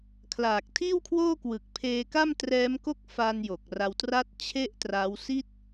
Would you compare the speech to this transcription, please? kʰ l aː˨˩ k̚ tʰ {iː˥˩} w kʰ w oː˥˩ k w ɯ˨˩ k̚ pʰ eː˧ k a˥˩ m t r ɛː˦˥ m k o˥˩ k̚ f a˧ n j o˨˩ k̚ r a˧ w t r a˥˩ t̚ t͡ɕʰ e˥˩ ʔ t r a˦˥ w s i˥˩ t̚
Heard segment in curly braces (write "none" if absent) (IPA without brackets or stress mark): iː˥˩